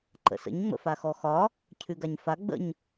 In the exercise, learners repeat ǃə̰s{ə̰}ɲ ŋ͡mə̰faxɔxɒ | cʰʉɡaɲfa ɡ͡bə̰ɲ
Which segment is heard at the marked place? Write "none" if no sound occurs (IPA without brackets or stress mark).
ə̰